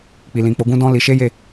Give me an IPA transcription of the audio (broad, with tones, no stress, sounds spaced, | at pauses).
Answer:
k͡p i˨ l ĩ˨ k͡p o˨˦ ɡ ũ˦ d ɔ̃˦ l i˧ ʃ e˦ j e˦˨